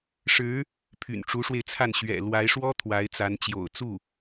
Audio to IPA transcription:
ʂ ɻ̩˧˥ | pʰ y̰˨˩ n ʈ͡ʂ u˧˥ ʂ w e˧ ɪ̯ t͡sʰ a˥˩ n ɕ ɥ ɛ̰˨˩ l w a˧˥ ɪ̯ ʂ w ɔ˥ t̪ʰ w a˧˥ ɪ̯ t͡s a˧˥ n t͡ɕ j o̰˨˩ ʊ̯ t͡s u˥˩

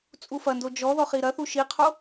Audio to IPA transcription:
t͡sʼ u f ɐ n d o d͡ʒ ɔ ð ɔ χ i ɾ ɐ θ u ʃ i qʰ o

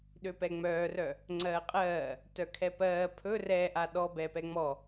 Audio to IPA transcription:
ɗ ø p ɛ ŋ͡m œː r œ | ŋ͡ǀ ɜː qʼ ɜː | t œ kʰ ɛ p ɜː pʰ ɵ r ɛ ʔ a ɗ ɔ b ɛ p ɛ ŋ͡m ɔ

